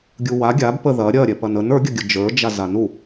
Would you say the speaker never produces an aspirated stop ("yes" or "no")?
yes